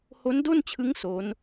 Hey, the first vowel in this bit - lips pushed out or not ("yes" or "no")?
yes